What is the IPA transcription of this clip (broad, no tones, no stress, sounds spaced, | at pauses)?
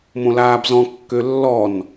m õ l aː b z ɔ̃ kː ø lː ɔ n